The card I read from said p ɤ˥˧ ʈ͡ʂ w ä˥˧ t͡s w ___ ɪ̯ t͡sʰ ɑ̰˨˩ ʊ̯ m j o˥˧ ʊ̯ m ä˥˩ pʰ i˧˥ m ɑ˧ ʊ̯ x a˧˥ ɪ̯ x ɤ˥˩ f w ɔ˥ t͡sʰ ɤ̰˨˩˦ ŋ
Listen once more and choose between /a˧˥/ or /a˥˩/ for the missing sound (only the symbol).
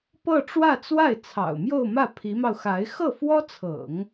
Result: a˥˩